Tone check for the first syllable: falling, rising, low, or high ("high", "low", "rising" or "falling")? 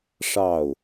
falling